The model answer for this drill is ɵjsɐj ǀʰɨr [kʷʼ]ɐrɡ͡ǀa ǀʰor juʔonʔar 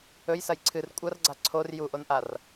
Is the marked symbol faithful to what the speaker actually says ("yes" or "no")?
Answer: yes